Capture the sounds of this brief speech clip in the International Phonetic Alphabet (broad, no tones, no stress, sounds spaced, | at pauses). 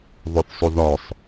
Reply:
ðˤ ɵ θ sˤ u ð ɒ sˤ